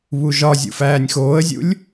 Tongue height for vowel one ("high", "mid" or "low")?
high